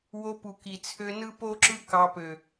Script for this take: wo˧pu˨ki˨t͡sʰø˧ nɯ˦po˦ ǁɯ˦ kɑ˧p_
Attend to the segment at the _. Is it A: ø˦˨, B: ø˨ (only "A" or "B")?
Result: B